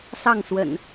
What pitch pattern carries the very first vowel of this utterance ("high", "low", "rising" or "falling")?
falling